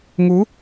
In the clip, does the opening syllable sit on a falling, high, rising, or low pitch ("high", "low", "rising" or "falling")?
rising